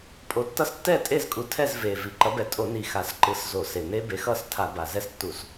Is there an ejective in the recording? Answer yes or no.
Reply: yes